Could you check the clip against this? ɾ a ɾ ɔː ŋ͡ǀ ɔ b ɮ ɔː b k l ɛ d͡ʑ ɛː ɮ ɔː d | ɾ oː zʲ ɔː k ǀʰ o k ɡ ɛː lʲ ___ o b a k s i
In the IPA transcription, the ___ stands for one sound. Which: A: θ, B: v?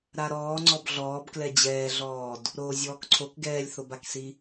A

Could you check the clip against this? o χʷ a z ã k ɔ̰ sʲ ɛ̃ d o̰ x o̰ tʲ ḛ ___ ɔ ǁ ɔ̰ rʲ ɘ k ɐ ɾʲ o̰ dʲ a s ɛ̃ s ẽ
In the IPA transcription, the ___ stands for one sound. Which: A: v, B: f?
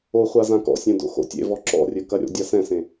A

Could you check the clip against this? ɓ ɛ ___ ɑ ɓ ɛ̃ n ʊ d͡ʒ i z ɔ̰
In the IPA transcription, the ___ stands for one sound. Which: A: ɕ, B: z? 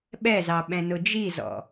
B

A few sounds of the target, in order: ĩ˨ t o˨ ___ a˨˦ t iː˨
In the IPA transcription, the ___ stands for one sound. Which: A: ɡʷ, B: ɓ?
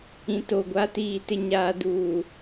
A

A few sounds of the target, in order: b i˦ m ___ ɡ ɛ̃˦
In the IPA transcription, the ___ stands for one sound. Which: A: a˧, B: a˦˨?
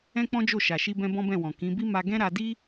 A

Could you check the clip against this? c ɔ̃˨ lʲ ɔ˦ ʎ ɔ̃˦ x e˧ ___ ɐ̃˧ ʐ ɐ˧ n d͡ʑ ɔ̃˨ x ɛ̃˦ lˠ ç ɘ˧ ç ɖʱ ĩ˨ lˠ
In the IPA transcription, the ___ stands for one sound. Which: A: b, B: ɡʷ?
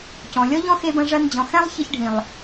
A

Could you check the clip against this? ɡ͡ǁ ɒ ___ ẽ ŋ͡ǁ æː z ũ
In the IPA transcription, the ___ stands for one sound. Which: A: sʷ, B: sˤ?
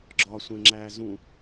A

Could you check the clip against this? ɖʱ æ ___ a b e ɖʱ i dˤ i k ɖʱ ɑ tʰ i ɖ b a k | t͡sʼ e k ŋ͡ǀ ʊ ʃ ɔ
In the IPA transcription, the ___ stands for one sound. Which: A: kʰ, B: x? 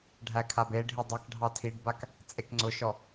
A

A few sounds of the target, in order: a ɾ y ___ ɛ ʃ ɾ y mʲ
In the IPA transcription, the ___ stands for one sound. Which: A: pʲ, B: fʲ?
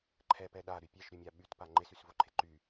A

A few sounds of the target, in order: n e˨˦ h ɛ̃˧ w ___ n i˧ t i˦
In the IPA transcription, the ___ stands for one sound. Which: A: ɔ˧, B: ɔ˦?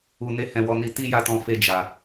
A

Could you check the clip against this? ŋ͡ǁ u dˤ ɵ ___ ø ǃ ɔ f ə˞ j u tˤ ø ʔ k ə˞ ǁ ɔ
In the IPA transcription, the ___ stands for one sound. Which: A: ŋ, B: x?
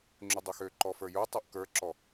B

